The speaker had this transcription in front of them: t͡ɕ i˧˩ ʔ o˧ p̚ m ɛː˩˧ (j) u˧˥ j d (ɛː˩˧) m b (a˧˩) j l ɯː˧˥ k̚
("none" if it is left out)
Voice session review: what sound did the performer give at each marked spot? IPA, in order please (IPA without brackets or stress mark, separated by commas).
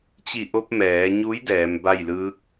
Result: ɲ, ɛː˩˧, a˥˨